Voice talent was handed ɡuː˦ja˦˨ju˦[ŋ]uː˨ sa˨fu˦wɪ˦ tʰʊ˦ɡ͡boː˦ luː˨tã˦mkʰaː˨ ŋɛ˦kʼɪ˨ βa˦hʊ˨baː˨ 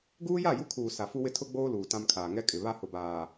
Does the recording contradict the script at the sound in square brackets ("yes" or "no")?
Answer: yes